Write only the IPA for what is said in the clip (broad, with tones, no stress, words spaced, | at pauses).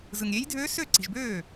zɯ˨ŋɾʲe˧˥j dʱøː˧˥sø˥˩ǀi̤˨ʒbøː˥˩